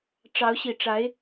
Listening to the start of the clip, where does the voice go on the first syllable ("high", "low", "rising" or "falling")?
rising